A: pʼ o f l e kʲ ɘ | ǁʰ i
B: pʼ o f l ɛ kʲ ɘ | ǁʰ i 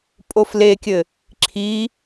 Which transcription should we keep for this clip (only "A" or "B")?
A